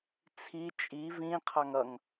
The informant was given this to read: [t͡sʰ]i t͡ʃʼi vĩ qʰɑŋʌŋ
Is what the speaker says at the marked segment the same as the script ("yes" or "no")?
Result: yes